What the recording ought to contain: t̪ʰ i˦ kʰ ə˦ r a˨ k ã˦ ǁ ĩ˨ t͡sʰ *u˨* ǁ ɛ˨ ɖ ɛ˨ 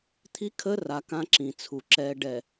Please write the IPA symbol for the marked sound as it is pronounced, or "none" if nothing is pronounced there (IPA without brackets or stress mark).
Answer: u˨